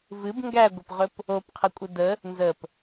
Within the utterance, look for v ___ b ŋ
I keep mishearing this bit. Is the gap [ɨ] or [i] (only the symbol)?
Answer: ɨ